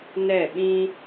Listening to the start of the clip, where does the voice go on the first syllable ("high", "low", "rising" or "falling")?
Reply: falling